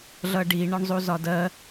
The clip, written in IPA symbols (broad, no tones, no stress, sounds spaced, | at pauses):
ɮ ʌ ɖ i ɳ ɒ ɳ zˤ u z ɒ d ɜ